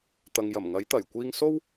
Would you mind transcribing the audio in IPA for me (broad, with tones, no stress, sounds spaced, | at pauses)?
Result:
t̪ ɐ˨ ŋ j ɐ˨˩ m ŋ ɐ˨˥ j t̪ ɐ˨˩ j kʷ iː˧ ŋ s o˥ w